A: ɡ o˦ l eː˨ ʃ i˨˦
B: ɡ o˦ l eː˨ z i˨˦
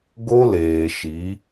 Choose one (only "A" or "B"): A